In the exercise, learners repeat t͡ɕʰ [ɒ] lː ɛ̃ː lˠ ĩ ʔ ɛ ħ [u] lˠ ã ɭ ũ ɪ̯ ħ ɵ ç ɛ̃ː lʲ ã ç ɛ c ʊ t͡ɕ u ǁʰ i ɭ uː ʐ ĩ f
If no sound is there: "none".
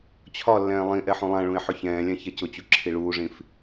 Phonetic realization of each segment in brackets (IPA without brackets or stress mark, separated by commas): ɒ, ũ